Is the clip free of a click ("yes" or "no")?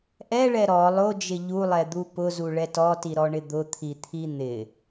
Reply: yes